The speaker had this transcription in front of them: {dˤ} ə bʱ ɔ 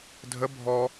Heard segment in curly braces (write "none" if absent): dʱ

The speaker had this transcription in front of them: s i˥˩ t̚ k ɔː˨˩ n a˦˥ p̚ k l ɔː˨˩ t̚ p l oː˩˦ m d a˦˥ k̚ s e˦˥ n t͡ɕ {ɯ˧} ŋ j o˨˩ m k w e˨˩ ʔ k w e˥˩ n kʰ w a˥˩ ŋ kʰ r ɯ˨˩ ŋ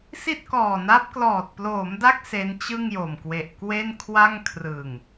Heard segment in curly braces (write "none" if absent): ɯ˥˩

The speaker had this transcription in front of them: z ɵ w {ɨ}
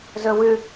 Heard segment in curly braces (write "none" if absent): ʉ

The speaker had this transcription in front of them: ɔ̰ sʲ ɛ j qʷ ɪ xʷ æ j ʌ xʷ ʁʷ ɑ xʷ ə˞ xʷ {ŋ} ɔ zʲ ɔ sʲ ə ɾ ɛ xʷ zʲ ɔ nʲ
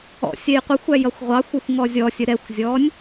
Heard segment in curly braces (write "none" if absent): ŋ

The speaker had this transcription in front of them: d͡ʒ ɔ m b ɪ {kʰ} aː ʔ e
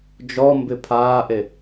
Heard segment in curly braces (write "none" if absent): pʰ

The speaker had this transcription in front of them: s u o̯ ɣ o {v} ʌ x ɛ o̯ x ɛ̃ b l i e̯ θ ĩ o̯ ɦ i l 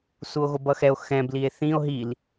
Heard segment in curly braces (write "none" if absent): b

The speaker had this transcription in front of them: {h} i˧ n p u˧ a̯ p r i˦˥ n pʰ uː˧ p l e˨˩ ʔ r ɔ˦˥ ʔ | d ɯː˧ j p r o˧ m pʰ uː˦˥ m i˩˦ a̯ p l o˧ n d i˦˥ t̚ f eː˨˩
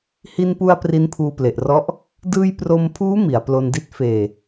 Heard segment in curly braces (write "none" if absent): h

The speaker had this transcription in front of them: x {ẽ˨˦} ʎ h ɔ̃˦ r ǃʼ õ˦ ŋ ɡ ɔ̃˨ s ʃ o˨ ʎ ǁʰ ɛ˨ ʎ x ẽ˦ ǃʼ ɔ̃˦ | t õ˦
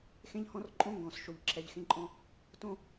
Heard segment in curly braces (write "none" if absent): ẽ˦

